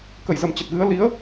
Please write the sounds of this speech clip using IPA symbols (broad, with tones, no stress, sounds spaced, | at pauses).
k ə˧˩ j z ə˨˩ m t͡ɕ ə˨˩ t̚ ɣ ɨ˨˦ ə̯ l i˨˦ ə̯